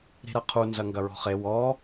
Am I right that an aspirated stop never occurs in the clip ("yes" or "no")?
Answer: no